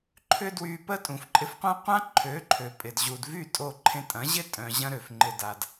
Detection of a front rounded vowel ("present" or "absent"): present